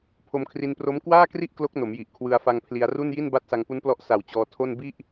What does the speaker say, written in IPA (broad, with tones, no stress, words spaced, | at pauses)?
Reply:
pʰo˧mkʰri˧npro˦˥m kwaː˥˩kri˥˩ʔ klo˦˥k̚no˩˦mji˨˩ʔ kʰwɯ˧a̯fa˧ŋ pʰli˧a̯ru˥˩nji˥˩n ba˦˥t̚sa˧ŋpu˦˥nplɔ˦˥ʔ sa˨˩w t͡ɕɔː˧ tʰo˥˩n bi˥˩ʔ